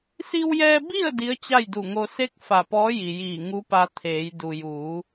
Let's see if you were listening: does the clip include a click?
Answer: no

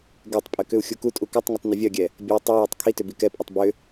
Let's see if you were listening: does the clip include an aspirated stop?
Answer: yes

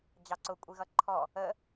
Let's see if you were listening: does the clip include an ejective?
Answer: yes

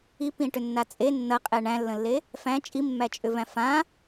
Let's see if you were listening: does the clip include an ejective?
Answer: yes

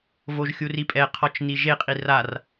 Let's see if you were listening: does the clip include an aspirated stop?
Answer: yes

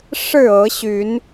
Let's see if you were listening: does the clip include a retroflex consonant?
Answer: yes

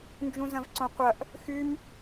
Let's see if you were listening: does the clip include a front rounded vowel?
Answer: yes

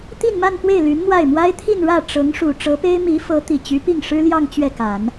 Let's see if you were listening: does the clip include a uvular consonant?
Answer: no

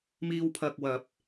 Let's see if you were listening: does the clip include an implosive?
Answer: no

